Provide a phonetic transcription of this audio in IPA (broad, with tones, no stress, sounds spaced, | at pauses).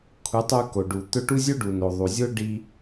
kʷʰ ɨ˨˦ tˤ u˧ k o˨ ɖ u˨ t̪ ɵ˧ ʈ u˦ zʲ o˦ ɖ u˨ n o˨ ðˤ u˨ zʲ o˦ ɖ i˧